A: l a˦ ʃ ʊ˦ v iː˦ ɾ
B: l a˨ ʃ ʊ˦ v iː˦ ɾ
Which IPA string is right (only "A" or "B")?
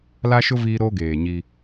A